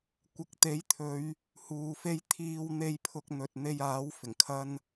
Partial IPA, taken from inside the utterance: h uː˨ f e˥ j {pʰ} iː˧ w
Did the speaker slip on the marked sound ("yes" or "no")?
yes